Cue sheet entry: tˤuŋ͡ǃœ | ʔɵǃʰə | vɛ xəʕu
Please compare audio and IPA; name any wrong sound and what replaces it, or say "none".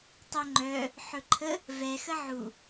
ʔ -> ħ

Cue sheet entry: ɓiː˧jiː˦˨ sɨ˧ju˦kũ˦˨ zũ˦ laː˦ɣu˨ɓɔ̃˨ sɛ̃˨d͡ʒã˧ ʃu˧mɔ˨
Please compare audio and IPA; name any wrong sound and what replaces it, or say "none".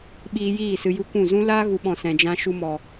none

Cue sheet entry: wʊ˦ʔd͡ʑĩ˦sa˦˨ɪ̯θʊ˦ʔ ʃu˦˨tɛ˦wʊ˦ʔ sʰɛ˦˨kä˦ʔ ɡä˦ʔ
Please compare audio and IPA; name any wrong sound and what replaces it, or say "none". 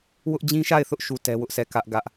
s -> ʃ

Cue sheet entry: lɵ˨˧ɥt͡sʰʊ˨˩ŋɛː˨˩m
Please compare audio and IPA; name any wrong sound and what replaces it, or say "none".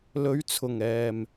none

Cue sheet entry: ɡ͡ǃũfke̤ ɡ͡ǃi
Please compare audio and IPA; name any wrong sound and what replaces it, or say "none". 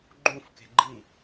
none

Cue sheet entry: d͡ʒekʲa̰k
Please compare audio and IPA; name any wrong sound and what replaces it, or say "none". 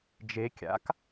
none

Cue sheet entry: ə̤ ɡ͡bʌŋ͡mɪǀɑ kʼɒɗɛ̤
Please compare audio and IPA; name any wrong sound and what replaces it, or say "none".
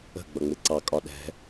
none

